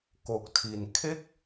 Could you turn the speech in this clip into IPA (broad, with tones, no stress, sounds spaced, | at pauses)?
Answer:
k o˨˩ k̚ tʰ i˨˩ n kʰ e˥˩ k̚